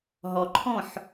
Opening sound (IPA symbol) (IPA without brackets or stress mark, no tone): ɦ